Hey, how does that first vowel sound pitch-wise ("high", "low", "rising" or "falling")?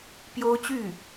high